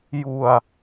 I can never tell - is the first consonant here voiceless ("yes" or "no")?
no